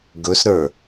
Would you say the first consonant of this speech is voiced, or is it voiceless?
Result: voiced